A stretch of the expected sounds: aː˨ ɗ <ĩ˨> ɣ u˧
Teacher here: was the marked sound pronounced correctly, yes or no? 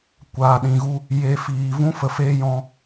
yes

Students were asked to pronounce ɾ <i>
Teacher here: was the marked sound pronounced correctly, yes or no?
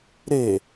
no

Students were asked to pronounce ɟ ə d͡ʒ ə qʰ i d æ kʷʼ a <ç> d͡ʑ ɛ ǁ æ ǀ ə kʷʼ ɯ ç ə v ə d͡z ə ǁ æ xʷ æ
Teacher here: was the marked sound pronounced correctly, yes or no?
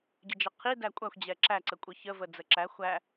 no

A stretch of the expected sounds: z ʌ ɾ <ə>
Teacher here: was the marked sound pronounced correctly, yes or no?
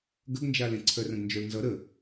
yes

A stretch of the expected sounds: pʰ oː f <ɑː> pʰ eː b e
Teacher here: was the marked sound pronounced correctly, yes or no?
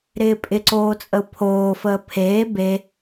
no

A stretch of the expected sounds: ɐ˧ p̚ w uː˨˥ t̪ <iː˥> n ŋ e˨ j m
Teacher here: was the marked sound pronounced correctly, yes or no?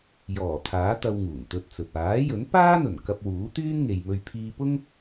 no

